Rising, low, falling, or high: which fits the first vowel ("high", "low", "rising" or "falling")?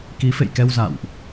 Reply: rising